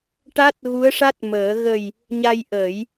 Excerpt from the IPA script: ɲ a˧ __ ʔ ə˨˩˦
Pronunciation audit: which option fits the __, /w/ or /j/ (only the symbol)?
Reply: j